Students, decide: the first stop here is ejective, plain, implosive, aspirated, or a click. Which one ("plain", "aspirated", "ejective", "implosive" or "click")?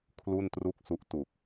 aspirated